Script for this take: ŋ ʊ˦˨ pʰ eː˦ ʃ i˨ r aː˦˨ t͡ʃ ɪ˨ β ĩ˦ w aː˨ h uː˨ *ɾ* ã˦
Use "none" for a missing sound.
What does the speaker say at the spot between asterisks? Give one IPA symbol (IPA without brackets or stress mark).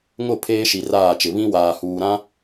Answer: ɾ